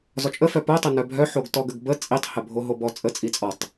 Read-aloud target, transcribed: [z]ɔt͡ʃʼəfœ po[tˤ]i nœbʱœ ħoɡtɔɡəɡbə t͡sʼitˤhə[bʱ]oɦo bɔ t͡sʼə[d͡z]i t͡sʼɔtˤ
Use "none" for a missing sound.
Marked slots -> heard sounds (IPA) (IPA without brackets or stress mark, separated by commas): z, tˤ, bʱ, t͡sʼ